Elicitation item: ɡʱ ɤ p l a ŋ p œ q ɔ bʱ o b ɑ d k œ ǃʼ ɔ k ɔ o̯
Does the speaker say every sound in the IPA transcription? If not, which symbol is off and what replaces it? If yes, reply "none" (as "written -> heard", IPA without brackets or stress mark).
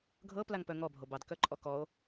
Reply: q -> ŋ